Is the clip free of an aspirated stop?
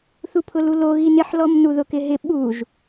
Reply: no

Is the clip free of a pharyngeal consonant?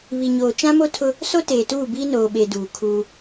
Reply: yes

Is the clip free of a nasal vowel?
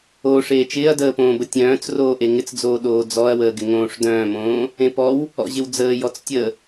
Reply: no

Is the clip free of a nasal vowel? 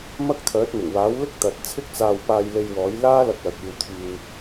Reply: yes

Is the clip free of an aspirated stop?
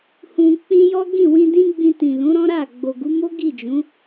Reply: yes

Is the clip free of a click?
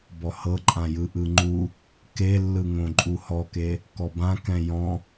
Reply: no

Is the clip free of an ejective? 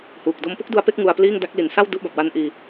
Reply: yes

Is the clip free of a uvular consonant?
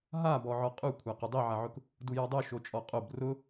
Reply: no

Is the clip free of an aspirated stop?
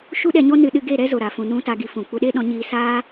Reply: yes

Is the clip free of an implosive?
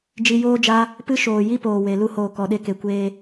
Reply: no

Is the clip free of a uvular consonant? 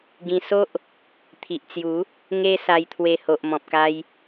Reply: yes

